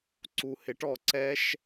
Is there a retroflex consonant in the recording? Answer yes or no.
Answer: yes